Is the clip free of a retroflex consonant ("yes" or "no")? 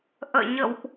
yes